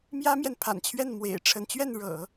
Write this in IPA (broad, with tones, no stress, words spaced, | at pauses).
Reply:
mjä˥mjɛ˨npʰa̰˨˩nt͡ɕʰɥɛ˥˩n mwḛ˨˩ɪ̯ʈ͡ʂʰə˧˥n t͡ɕɥɛ˥˩nɻɤ̰˨˩˦